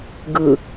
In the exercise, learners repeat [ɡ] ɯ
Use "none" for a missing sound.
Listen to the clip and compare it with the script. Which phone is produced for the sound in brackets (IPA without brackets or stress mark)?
ɡ